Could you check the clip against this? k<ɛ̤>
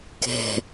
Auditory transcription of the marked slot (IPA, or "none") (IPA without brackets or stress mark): ɛ̤